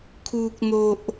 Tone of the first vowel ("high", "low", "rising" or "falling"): low